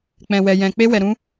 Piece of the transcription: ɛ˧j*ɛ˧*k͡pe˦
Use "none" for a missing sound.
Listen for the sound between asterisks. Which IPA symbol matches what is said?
ɛ̃˧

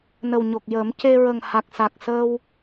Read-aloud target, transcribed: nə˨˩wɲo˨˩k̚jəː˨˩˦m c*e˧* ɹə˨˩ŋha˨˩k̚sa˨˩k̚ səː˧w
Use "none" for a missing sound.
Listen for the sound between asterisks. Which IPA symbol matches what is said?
e˧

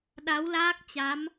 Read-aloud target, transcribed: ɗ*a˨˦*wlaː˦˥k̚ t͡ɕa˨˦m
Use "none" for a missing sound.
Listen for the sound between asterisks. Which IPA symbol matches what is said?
a˨˦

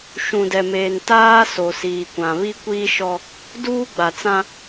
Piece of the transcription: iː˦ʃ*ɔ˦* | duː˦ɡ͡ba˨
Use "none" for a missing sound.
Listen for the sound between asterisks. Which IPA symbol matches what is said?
ɔ˦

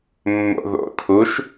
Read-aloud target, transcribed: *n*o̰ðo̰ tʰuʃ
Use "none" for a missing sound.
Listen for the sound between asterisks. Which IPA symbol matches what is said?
mː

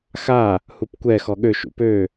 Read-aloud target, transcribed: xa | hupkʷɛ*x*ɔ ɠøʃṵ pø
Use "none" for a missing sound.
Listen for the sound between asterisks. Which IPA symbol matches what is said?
x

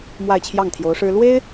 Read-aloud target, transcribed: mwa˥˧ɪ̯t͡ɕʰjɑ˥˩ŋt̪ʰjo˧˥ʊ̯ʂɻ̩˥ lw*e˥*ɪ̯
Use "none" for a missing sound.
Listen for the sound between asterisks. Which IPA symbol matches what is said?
e˥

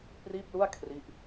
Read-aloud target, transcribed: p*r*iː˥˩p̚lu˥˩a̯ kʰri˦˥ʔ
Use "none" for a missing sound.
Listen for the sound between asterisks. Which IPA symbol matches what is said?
r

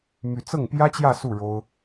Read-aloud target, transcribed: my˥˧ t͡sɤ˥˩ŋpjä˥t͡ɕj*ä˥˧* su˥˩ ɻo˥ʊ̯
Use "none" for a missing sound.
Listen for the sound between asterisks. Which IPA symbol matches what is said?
ä˥˧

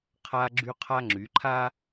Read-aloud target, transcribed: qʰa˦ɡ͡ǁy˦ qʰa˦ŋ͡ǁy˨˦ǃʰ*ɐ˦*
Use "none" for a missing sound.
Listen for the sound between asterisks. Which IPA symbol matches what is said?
a˦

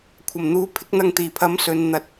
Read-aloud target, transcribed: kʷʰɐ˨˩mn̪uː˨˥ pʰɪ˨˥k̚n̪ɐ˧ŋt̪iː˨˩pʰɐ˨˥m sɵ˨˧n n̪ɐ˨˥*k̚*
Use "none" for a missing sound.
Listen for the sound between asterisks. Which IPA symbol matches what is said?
t̚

